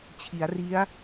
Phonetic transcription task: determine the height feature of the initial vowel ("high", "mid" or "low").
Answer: high